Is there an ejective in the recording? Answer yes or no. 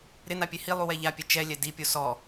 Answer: no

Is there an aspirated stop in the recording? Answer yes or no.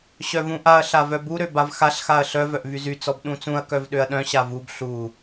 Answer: no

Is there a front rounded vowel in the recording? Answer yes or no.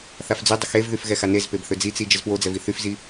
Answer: yes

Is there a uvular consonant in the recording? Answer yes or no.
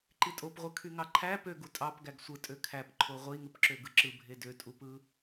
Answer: yes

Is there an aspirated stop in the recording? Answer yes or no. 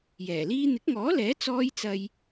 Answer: no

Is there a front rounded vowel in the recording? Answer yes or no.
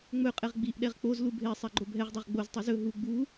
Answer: no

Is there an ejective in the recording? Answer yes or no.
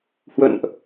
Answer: no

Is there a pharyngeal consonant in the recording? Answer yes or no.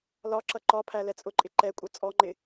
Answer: no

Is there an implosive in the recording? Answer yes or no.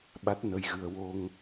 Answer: yes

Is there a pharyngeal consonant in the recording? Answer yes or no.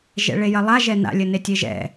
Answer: no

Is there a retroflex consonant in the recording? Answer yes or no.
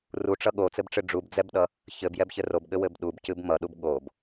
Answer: yes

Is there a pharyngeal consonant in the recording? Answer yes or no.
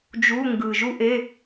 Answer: no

